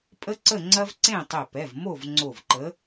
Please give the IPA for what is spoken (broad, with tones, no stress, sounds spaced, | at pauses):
pʼ ə˥ ǀ ə˥˨ ŋ͡ǀ ɐ˥ v ǀ ẽ˥˨ tˤ ɪ˧˩ p ɛ˩˧˩ v m o˥˨ v ŋ͡ǀ o˧˩ v ǃ ə˨˥